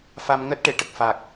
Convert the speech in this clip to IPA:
f a˧ m ŋ əː˦˥ t̚ ʈ e˨˩˨ ʈ ə˨˩ k̚ f a˨˩ k̚

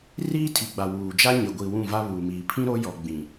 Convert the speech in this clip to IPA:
r iː˦ tʰ i˨ ɡ͡b a˨ w uː˨ d͡ʒ a˦ ɲ ɪ˨ ɡʷ i˨ w ũ˦˨ v a˦ β uː˨ m iː˨ pʰ ĩ˦ ɾ o˦ j ɔ˨ ɡ͡b ĩ˨

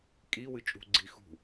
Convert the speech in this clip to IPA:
kʼ i w ɨ t͡ʃʼ ṳ ɡ͡ǀ i x ṳ

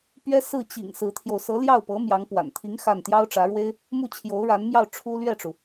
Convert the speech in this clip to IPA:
p ɥ ɛ˥ s ɹ̩˥˩ t͡ɕ ḭ˨˩ ŋ s ɹ̩˧˥ t̪ʰ j o˧ ʊ̯ s ɤ˧˥ l j ɑ˥˩ ʊ̯ p ɤ˧˥ m j ɑ˧˥ ŋ p w a̰˨˩ n t̪ʰ i˧˥ ŋ x a˥˩ n t̪ j ɑ˥ ʊ̯ ʈ͡ʂ ä˧˥ ɻ w e˥ ɪ̯ | m u˥˩ t͡ɕʰ j o˧˥ ʊ̯ ɻ a˧˥ n m j ɑ˥˩ ʊ̯ ʈ͡ʂʰ u˥ l ɥ ɛ˥˩ ʈ͡ʂ u˩

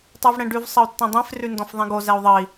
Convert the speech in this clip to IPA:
tˤ ə˞ v ɽ ɛ̃ ɖ ʉ v sˤ ə u̯ tː ɛ̃ dˤ ẽ f r ʉ n d ɔ̃ f ðˤ ĩ ɡ o z ɛ u̯ ðˤ ə i̯

